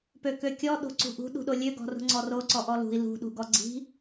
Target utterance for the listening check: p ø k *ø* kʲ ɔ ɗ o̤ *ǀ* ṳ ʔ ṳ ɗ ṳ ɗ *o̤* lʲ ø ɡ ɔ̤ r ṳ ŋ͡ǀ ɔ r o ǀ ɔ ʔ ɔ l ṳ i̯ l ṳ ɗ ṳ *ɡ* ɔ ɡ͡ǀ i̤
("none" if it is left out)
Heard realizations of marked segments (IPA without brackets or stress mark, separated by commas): ø, ǀ, o, ɡ